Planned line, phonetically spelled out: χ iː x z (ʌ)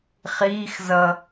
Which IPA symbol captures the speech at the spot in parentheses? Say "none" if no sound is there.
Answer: ʌ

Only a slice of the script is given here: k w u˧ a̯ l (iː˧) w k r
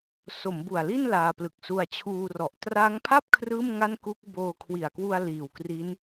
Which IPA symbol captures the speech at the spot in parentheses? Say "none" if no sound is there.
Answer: iː˨˩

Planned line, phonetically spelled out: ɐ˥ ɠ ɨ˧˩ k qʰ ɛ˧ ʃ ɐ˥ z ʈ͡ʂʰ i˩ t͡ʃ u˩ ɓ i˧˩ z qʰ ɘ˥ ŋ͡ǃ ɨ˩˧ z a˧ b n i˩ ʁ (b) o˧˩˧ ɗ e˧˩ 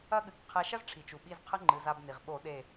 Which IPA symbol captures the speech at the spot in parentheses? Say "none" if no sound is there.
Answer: ɓ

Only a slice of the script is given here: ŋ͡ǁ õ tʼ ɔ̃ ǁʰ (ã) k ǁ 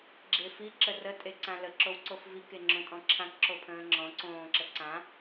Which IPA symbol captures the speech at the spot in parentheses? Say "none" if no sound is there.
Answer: ã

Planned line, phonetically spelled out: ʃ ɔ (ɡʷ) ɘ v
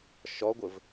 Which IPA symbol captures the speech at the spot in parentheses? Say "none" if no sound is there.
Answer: ɡʷ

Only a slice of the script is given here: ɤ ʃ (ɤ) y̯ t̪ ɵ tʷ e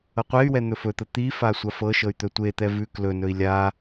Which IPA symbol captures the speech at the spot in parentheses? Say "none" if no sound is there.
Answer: ɤ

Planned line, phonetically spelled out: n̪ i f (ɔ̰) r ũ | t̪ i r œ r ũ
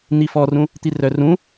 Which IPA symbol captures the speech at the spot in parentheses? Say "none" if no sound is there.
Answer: ɔ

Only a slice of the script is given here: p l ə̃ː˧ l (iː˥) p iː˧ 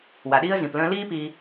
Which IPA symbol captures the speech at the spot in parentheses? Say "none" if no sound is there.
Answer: iː˥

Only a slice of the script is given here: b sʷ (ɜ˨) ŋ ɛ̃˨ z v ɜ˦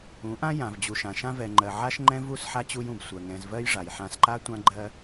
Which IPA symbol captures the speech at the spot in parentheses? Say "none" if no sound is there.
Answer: ɜ˨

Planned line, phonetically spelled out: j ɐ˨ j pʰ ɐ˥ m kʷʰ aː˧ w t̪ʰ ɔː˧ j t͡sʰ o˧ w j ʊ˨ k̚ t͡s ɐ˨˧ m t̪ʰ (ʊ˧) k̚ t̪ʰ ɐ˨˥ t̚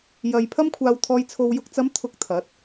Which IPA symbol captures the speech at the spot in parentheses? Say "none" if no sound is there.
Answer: ʊ˧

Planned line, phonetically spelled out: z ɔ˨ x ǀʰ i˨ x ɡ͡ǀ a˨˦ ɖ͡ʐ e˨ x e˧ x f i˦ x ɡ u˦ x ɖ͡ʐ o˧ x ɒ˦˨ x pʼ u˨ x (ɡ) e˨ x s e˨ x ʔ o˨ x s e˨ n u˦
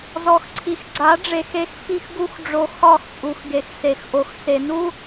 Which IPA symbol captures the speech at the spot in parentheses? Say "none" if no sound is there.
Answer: ɡ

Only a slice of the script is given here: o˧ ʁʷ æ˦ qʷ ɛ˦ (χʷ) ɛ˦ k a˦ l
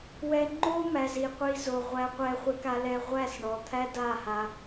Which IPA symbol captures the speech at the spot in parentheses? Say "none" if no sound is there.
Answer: χʷ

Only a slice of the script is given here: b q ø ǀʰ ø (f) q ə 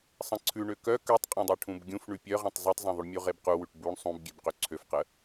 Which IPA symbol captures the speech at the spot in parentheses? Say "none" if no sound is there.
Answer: f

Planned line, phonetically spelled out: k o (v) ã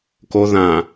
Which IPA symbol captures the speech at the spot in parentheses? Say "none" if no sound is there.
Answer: ð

